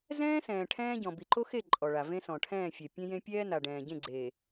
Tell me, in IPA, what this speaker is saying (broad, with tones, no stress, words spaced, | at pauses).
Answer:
zɛ̃ː˦sɛ̃ː˨ ʈʰɛ̃ː˦ ɟɔ̃˨bi˨ǃo˦xe˦˨ ǃʼɔ˨ɭa˨ vẽ˦sɔ̃˨ ʈʰɛ̃ː˦˨fʲɛ˨ pʲẽ˦jẽ˦ pʲɛː˦na˨ ɖɛ̃ː˨ ɟẽ˦˨ɡ͡ǀeː˨